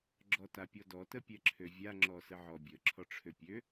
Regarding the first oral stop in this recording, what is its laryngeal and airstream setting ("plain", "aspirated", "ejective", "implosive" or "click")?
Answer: click